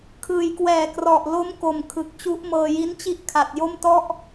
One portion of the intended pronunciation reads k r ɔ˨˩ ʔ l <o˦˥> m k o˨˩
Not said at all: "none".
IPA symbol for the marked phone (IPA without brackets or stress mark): o˦˥